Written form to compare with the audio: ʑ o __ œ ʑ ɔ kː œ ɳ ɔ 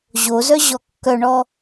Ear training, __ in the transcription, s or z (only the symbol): z